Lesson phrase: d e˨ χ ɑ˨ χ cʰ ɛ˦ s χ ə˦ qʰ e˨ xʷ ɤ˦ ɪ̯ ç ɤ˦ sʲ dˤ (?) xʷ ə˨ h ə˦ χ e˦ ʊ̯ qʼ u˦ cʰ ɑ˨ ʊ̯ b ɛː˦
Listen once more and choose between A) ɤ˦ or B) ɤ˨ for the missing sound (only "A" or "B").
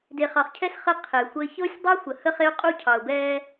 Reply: A